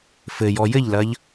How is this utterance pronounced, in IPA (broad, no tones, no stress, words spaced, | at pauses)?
fɘjɔ jɘʎlɐʎ